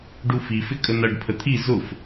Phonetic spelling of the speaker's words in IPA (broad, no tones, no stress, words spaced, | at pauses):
ɖufi fɪkʼənʌɖ pʰət̪ʰi zʊf